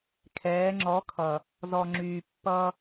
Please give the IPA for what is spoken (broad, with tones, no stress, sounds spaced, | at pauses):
kʰ ɛː˨˦ ŋ͡ǁ ɔ˨˦ kʰ ʌ˨ | z ɔ˨ ŋ͡ǁ yː˨ pː ʌ˦